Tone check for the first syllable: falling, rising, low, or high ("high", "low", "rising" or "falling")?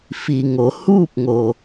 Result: low